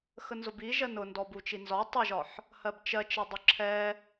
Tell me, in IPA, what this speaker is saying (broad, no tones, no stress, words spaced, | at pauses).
xənzʊbiʒɜn ʊ ndɔbut͡ʃinzɒ tˤʊʒɒħ | hɜbt͡ʃɜt͡ʃədˤʊ ǁʰɛ